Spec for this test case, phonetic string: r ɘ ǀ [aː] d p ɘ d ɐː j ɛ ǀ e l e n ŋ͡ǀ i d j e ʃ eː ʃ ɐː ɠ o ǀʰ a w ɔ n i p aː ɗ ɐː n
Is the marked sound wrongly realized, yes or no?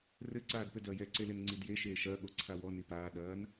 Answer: no